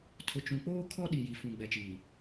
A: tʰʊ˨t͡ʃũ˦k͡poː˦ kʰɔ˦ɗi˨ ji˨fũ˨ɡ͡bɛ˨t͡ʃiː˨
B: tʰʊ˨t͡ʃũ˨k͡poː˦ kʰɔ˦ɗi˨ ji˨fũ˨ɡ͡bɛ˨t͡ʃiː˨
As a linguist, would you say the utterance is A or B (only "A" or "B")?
B